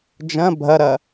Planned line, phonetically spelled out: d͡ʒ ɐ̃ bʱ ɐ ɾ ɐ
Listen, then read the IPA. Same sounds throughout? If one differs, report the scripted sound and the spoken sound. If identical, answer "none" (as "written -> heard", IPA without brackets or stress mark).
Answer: none